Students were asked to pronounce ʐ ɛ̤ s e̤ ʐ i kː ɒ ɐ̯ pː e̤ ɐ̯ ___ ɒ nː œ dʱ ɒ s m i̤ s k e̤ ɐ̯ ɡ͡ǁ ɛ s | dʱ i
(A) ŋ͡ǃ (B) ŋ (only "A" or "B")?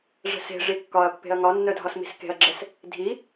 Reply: B